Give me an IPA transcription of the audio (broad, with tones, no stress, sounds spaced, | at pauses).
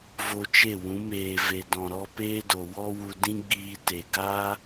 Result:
v o˧ t͡ʃ e˦˨ w ũ˨˦ m eː˨ v e˨ d ɔ̃˨ ɾ ɔ˧ p eː˦ d o˨ w ɔ˦ w u˧ d ĩ˦ ɡ͡b iː˧ t e˨ ɡ aː˦